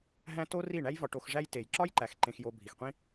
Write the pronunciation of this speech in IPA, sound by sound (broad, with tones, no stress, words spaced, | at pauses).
ɦæ̃˧ to˦ri˦˨ ɳæ˦jvɒ˧ ʈo˧xʐæ˦jte˨j ǁɒ˦jǃæ˨x ǃẽ˧xjo˧ bʱi˨xqʷĩ˦